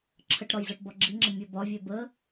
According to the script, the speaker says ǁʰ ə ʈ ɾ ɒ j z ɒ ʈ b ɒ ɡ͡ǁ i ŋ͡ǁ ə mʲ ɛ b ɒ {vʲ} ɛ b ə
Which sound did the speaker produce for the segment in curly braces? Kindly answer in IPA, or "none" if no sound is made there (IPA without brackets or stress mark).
vʲ